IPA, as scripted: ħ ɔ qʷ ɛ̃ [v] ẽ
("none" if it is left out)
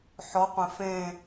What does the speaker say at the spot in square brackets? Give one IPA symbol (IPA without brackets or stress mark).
f